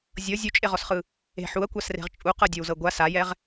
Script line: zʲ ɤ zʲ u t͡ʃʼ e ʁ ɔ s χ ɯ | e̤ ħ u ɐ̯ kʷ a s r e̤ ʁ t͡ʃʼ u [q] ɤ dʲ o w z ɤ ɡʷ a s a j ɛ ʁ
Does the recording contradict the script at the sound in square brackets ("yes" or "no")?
no